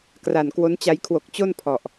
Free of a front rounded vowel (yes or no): yes